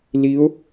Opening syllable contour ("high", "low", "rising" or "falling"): rising